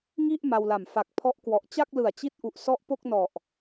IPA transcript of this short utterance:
ŋ i˥˩ ʔ m a˧ w l a˨˩ m f a˨˩ k̚ pʰ ɔ˦˥ ʔ k w ɔ˨˩ ʔ t͡ɕ a˥˩ k̚ l ɯ˨˩ a̯ t͡ɕ i˦˥ t̚ ʔ u˨˩ ʔ s ɔ˦˥ ʔ p o˥˩ k̚ n ɔ˨˩ ʔ

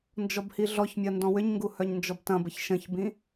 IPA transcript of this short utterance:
n d͡ʒ ɔ b h i ɮ ɔ ç mʲ ɐ n d ɔ̃ w ʏ ɲ ŋ ɡ u h œ ɲ n d͡ʒ ɔ b t ɐ̃ b ə ç ʃ ə̃ ç b ĩ

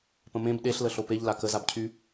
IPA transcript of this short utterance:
p ə̃ m ẽ b ɗ e ɬ l ə ɬ o p e ʎ l a k ə z a b cʰ y

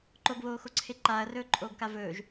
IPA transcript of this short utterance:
ǃ o ɡ β oː x o ǀʰ e ǃ aː ɐ̯ r ɵː ǃʼ oː ɡ k a v ɵː ʒ

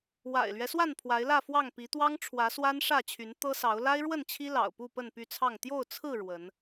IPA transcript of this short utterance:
w a̰˨˩ ɪ̯ l ɥ ɛ˦ s w a˥˨ n pʰ w a˨˦ ɪ̯ l ä˥˨ f w ɑ˥˨ ŋ p i˨˦ t̪ w ɑ˦ ŋ ʈ͡ʂʰ w ä˨˦ s w a˦ n ʂ ä˥˨ t͡ɕʰ y˨˦ n t̪ ɤ˦ s ɑ˨˦ ʊ̯ l a˦ ɪ̯ ɻ w ə˥˨ n t͡ɕʰ i˦ l ɑ̰˨˩ ʊ̯ p u˥˨ p ə˥˨ n p y˥˨ t͡sʰ ɑ˥˨ ŋ t̪ j o˥˨ ʊ̯ t͡sʰ ɹ̩˥˨ ɻ w ə˨˦ n

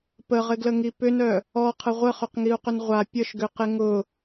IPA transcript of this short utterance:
p ə ʁ ɪ ɡ l ə ŋ i p ʏ n œ | ɔ qʰ ə ʁʷ ə χ ʏ q ŋ i u̯ q ʏ n ʁʷ a pʲ ə ʃ ɡ ʏ q ɪ ŋ ʊ

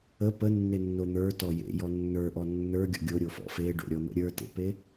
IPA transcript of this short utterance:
ə p ə nː e nː o n̪ ə˞ t ɔ j ḛ j ɔ nː ə˞ ʔ ɔ nː ə˞ ɡʲ ɔ̰ ɡʲ o ɾʲ o f ɔ̰ f e ɖ o̰ ɾʲ ɔ n̪ ə̰ ɾʲ ə˞ t ḛ p e

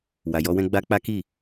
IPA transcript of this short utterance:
w a˨ j ɔ˨˦ w ɛ̃˦ ɡ͡b a˦ k͡p a˦ k i˦˨

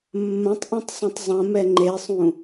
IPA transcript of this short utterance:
mː ɐ̃ tˤ ʔ ĩ tˤ sˤ ĩ tˤ zˤ ɐ̃ m ɛ ŋ͡ǃ e sˤ ũ

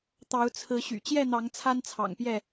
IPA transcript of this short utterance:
t̪ ɑ˨˦ ʊ̯ t͡sʰ ɹ̩˨˦ ɕ y̰˨˩ t͡ɕ j ɛ˥˨ n̪ ɑ˨˦ ŋ t͡sʰ a˦ n t͡sʰ ɑ̰˨˩ ŋ p j ɛ˥˨

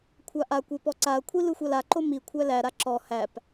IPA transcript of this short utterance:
kʷʰ a ʔ a kʷ e p ɔ ǀ a ɐ̯ kʷʰ i l ɯ xʷ a l a ǃ o m i kʷʰ æ l æ ɾ a ǁ ɔ h æ p

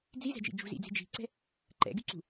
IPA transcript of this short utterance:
d͡z i z ɛ̤ d͡ʒ ḭ d͡ʒ ṳ z ḭ d͡z i̤ d͡ʒ i̤ ǀ ɛ̤ | ǃ ɛ̰ ɡ y ǀ ṳ

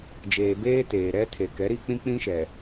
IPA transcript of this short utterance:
d͡ʒ eː˨ b eː˦ t eː˨ ɾ ɛ˦ tʰ e˨ k ɛ˨˦ ɾ i˦ k͡p ĩ˦ k͡p ĩ˦ ʃ ɛ˨

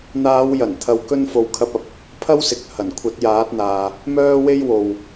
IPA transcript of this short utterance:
n̪ aː˨˧ w j ɐ˨˩ n t̪ʰ ɐ˨ w k ɵ˧ n f o˨ w kʰ ɐ˧ p̚ ɐ˨ p̚ | pʰ ɐ˥ w s ɪ˨ k̚ h ɐ˨˩ n kʷʰ ɐ˨˥ t̚ j aː˨˥ t̚ n̪ aː˨ | m œː˥ w e˥ j w o˨ w

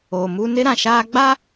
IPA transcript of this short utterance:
o˨ m u˦ n ɪ˦ ɾ ã˨ ʃ aː˦ ɡ͡b a˦

